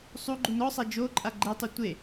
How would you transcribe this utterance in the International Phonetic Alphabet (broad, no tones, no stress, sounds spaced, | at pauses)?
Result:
sˤ u ɡ͡ǃ u n ɔ sˤ æ d͡ʒ o ǃʼ a ɡ͡ǃ e tˤ u tʷ e